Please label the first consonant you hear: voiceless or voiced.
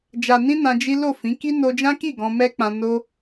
voiced